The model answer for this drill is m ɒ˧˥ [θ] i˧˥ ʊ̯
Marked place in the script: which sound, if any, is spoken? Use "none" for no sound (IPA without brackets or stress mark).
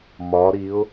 ɾ